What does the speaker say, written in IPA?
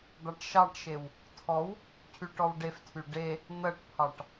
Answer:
d̪ ɑ ʈ ʃ ɑ ʈ ʃ e w | tʰ ɔ w | cʰ y ʈ ɔ w ɖ e f tʰ y ɖ e | n̪ ɜ ʈ pʰ ɑ ʈ

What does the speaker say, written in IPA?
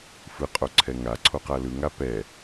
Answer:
f ɯ qʼ o ǀʰ ɛ ŋ a ǀʰ o q a l ɯ ŋ a p ɛ

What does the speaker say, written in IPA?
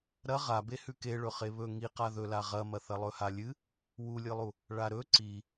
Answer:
ɾ ɐ ʁ a b e h ʉ k e ɭ ɵ χ e β ɵ ŋ i q a ð ɵ l a ʁ ɐ m ɐ θ ɐ lˠ ɵ h a lʲ ɨ | w u lʲ ɨ lˠ u | ɭ a ɾ ɵ ǀ i

